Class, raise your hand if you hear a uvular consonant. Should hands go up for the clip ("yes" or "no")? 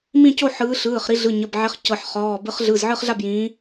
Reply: yes